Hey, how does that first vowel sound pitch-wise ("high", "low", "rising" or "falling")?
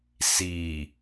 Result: low